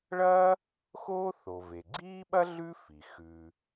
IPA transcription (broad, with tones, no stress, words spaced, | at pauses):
ɭɐː˥ | xoː˥θo˩ ve˩ ɡ͡ǀiː˥ɓɐ˥ ɮʉ˥fi˩ xʉ˩